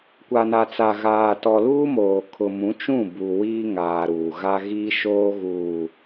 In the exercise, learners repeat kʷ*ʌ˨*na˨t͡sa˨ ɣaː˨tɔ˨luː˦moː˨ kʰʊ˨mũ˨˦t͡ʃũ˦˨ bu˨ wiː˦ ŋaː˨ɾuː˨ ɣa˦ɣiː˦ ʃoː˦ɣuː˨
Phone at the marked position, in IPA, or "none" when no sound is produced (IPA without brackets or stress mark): a˨